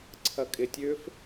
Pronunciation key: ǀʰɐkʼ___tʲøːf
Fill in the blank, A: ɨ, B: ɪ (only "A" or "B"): B